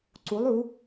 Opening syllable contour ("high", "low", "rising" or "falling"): rising